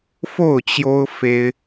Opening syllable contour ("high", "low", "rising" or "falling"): falling